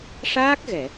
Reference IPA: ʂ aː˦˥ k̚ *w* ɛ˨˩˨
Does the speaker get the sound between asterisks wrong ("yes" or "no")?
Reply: yes